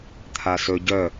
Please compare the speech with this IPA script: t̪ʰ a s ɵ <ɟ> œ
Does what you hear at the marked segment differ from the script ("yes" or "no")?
no